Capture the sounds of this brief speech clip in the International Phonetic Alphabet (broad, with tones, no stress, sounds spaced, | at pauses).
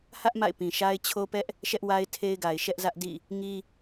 h ä˦ ʔ m a̰˦˨ ɪ̯ p ĩ˨ ʃ a˦ ɪ̯ t͡ɕʰ o˦ p ɛ˦ ʔ | ʃ ɛ˦ ʔ w a˦ ɪ̯ tʰ e˦ ɪ̯ ɡ a˨ ɪ̯ ʃ ɛ˦ ʔ z ä˦ ʔ d ḭ˦˨ | ŋ i˦